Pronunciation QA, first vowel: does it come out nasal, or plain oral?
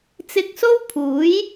oral